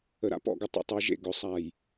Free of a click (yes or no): yes